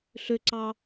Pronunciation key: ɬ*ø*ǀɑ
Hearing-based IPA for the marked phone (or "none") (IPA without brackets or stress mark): ø